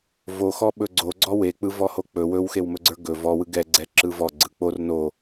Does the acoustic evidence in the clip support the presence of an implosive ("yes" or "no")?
yes